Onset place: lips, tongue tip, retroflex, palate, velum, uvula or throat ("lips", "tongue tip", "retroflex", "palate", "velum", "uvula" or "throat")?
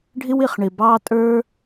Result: retroflex